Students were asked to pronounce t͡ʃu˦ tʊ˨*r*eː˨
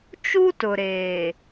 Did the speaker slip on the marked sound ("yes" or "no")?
yes